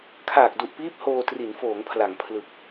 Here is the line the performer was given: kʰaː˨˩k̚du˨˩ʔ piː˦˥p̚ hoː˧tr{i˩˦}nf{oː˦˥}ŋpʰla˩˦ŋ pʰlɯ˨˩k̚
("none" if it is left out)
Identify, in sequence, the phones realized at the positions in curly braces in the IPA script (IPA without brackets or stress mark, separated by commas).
i˩˦, oː˩˦